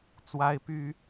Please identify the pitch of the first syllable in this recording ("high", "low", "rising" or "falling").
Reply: high